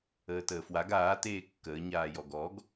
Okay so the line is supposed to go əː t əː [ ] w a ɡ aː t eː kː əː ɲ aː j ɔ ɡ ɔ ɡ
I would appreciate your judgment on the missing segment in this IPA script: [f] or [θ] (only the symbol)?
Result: f